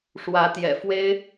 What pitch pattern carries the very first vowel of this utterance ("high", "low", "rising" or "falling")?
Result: rising